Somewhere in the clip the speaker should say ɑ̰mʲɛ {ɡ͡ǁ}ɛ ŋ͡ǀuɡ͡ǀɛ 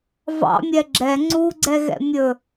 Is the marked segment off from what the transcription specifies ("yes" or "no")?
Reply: no